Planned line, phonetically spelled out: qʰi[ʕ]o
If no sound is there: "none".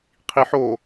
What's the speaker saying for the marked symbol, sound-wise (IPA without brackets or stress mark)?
ħ